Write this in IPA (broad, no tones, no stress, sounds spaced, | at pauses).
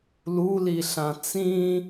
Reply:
l u l i ɬ ã t͡s ĩ